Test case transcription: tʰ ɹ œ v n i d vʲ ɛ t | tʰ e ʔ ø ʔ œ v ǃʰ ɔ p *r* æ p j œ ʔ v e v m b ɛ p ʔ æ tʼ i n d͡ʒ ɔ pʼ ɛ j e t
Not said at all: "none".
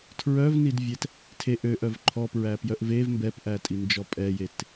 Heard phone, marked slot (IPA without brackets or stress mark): ɹ